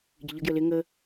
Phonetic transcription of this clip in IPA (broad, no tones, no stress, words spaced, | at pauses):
ɟɪʎə ɡjəlɪ ŋə